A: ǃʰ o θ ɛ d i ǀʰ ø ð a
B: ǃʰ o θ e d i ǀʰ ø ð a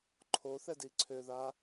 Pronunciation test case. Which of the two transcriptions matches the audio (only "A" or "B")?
A